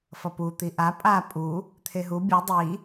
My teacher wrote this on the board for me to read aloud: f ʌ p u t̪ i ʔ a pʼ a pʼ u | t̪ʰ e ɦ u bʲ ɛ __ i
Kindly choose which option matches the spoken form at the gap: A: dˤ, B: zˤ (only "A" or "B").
A